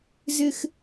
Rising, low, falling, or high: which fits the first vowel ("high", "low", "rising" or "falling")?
high